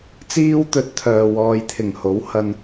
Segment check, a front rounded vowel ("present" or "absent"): present